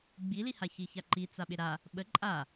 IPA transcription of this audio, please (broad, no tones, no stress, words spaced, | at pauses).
ɡ͡biliha çiçaǃi t͡saɓɪɾa | ɓə ǃʼa